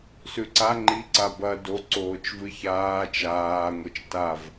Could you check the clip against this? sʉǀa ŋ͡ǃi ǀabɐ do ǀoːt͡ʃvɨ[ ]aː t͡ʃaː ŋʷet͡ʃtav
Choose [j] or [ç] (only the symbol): ç